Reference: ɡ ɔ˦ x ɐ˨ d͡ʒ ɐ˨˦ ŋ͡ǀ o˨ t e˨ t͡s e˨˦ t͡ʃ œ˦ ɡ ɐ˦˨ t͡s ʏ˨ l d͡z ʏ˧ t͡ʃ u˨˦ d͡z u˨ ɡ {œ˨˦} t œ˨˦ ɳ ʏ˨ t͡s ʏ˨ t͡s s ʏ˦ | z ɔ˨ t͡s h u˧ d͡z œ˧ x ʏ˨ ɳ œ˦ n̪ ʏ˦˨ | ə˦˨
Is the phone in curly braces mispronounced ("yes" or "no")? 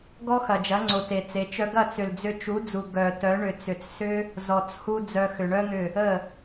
yes